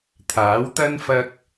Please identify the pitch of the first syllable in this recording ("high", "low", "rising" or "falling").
rising